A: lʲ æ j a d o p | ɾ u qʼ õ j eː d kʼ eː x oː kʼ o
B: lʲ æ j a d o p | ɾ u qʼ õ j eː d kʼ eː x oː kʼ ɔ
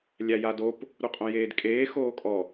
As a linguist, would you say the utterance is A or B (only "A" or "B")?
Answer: B